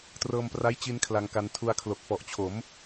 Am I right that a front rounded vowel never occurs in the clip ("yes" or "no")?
yes